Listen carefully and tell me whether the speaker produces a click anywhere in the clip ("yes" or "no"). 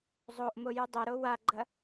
yes